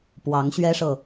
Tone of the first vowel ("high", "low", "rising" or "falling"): rising